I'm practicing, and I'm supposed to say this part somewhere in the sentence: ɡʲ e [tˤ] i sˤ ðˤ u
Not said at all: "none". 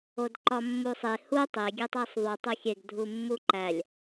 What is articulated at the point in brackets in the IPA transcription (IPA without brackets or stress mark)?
tˤ